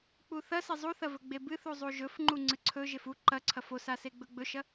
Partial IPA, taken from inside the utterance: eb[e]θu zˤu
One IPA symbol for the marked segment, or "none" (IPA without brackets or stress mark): ɨ